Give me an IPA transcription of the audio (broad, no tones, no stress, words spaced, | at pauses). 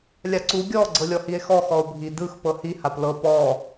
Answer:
lʲaǀu ɡʲɔ ɡ͡ǀɤlʲɔhie̯xɔ xɔo̯bʱi dɯx pɤhi haplɤ pɔ